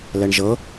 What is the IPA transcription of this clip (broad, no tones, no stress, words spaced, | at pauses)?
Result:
lɛɳʒɤ